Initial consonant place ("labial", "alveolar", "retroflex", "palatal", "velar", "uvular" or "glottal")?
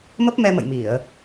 labial